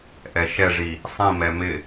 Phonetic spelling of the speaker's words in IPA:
ʔ ɛ ʃ ɛ ʐ i | sˤ ĩ m ɛ m ɪ

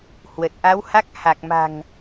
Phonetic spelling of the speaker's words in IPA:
h w ə˨˩ t̚ ʔ a˨˦ w h a˦˥ k̚ h a˨˩ k̚ m a̤˨˩ ŋ

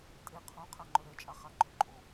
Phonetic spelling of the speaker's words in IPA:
tʼ e qʰ õ qʰ a ŋ͡ǃ œ ɾ ɛ t͡ʃʼ a χ a ɡ͡ǃ œ ǃʼ o

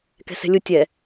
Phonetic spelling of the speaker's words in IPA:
k ɛ̤ s ɛ̤ lʲ ʊ tʲ ɛ

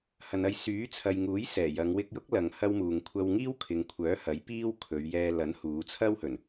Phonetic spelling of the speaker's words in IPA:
h ɐ˨ n ɐ˧ j s yː˨˥ t͡sʰ ɐ˨ j ŋ uː˨˥ j s ɛː˨˩ j ɐ˨˧ ŋ w ɪ˧ k̚ j ʊ˥ k̚ l ɐ˨ ŋ h ɐ˥ w m uː˨ ŋ kʷʰ ɐ˧ w ŋ iː˥ w kʰ ɪ˨ ŋ kʷʰ œː˨˥ h ɐ˨˥ j p iː˥ w kʰ ɵ˨˧ ɥ j ɛː˧ l ɐ˨˥ n h uː˨˧ t͡sʰ ɐ˥ w h ɵ˨˩ n

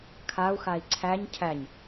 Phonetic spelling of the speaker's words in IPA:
kʰ a u̯ x a i̯ ǀʰ æ ɲ cʰ æ ɲ

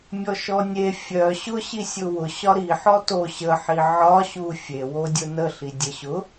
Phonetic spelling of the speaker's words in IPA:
mʲ ɔ ʃ ɔ nʲ e fʲ œ ɕ ʊ ɕ i sʲ ʊ w ʊ ɕ ɒ ɾ i ħ ɔ t o ɕ ə ħ i ʕ ɒ ɕ u fʲ e w o dʲ ʊ n ə ɬ i dʲ ə ɕ ʊ

